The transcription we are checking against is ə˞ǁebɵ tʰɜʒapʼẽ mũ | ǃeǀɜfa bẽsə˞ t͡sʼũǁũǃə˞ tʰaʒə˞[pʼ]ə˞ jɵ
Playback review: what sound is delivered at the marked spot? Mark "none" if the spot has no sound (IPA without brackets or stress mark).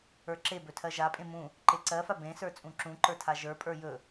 pʼ